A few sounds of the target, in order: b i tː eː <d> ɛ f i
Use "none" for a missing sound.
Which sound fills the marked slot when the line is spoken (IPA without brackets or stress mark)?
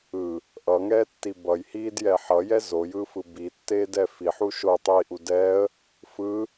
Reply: d